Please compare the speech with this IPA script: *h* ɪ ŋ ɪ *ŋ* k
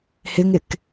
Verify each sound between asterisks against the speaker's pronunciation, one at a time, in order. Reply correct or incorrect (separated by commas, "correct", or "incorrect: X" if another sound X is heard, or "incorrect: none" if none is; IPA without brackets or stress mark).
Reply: correct, incorrect: none